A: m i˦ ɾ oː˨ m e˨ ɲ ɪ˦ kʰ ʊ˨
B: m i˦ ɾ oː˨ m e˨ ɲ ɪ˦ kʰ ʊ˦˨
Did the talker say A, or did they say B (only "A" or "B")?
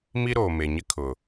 A